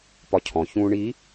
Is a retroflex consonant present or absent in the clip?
present